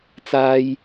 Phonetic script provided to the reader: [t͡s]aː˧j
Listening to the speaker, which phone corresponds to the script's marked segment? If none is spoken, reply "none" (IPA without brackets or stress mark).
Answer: t͡s